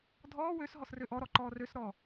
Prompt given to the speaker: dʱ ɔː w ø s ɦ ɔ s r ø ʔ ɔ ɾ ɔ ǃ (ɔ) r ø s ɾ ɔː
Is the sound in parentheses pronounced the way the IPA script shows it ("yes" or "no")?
no